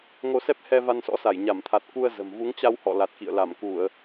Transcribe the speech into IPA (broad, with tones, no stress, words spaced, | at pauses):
ŋo˧sɛ˦˥p̚hɛ˧ va˧nsɔ̰˧˥sa˧˩j ɲa˧˩mt̪ʰa˨˩t̚ ku˧ə̯ zə̤˨˩m vu˨˦ŋt͡ɕa˧whɔ̰˧˨ la˨˩t̚kḭ˧˨ə̯la˧˩mku˧˩˨ə̯